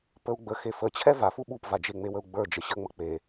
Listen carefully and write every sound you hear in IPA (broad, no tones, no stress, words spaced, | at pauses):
pəu̯ɡ͡bəxe fət͡ɕʰɛ vafu ɓupvad͡ʒe ŋ͡mewəu̯ɡ͡bə˞ d͡ʒəɕəŋ͡mə k͡pe